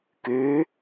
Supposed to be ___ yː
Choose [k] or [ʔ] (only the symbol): k